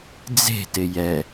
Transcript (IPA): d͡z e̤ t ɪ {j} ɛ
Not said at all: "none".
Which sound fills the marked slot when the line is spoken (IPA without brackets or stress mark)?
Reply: j